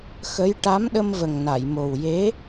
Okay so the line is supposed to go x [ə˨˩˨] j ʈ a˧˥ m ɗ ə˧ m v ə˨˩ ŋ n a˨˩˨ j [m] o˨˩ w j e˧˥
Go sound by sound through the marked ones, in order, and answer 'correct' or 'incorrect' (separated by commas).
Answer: incorrect, correct